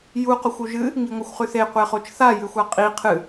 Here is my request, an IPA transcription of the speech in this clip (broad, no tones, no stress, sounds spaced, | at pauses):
j u q o xʷ u ʒ ɨ | ŋ i ŋʷ ɐ xʷ χ ʉ θ e qʷ e χ o t͡ʃ θ a j ɨ xʷ a qʼ i qʰ ɨ